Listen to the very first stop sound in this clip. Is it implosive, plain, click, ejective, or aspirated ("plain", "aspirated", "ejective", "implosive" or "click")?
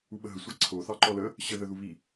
implosive